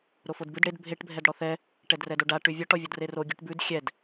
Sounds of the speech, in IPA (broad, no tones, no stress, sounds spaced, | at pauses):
ɾ o f o d b ʉ d ɽ e d bʱ e ʈ bʱ ɛ d ɽ ɔ θ ɛ | ʈ ɛ d r ɛ d o ɖ a ʈ ʉ vʲ ɔ ʈ ɔ vʲ ɔ d r e r o ɡʲ ʉ ʈ b ʉ d xʲ ɛ d